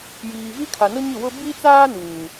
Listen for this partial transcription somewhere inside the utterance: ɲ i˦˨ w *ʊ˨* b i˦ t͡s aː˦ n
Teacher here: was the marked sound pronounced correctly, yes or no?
no